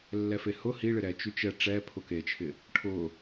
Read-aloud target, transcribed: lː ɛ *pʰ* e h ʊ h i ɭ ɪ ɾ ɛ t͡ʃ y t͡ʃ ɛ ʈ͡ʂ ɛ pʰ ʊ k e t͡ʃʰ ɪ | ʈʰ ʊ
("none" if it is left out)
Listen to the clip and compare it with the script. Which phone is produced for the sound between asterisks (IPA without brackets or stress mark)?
f